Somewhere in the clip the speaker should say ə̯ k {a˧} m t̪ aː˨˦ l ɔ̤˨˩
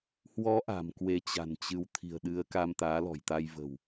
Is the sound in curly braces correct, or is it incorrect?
correct